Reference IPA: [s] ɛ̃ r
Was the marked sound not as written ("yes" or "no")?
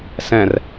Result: no